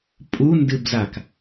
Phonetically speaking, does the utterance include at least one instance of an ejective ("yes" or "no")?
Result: yes